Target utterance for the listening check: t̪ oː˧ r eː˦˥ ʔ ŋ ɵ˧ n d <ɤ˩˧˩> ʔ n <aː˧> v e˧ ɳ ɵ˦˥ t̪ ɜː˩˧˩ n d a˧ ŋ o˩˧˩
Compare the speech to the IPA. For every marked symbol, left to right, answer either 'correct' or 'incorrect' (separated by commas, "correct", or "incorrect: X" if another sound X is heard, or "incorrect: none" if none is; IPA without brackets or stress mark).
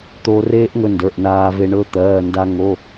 incorrect: ə˞˩˧˩, correct